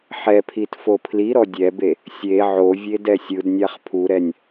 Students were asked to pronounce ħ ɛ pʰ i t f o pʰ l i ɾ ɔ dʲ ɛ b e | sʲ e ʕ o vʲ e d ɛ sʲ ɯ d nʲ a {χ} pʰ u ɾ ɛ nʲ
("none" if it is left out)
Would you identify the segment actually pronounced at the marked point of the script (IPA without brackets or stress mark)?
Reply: χ